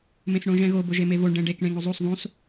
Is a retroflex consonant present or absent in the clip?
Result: present